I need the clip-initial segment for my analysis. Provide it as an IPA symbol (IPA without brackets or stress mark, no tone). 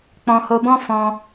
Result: k͡p